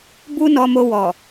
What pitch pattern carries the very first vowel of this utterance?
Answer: high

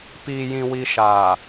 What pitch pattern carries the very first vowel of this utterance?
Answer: low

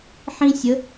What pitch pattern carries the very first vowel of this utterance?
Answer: high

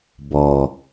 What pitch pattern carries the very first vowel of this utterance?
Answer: low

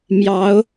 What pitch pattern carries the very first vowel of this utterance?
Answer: rising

